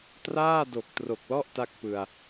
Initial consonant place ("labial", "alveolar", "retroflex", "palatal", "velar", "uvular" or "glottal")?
alveolar